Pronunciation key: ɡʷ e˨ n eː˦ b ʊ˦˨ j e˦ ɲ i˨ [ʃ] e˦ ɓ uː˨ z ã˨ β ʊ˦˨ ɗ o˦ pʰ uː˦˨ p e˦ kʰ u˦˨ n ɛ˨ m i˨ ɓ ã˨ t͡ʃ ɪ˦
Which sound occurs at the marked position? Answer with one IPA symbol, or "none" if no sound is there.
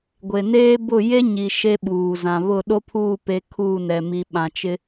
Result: ʃ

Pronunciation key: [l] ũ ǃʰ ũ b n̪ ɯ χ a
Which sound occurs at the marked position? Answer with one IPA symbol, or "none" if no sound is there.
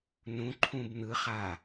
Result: n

